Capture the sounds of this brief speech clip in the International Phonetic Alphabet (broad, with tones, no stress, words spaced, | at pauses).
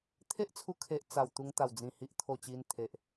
t̪ʰe˦ʔt͡sʰu˧kʰe˨ʔ t͡sa˨˩w t̪u˧ŋt̪a˨˩wd͡zĩ˨˩ hi˨ʔt̪ʰo˨˩ t͡ɕi˧nt̪ʰe˨ʔ